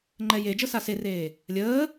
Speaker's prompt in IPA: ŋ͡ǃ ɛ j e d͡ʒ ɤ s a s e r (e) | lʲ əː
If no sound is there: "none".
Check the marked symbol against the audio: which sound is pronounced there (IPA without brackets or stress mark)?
eː